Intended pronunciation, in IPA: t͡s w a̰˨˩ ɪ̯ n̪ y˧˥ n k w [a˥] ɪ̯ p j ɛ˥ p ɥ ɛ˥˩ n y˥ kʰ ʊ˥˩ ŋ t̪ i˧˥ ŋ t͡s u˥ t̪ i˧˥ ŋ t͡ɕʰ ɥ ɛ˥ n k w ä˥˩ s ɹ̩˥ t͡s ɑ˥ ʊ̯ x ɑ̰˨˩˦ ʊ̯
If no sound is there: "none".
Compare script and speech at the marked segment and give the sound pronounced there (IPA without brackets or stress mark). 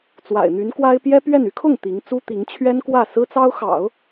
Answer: a˥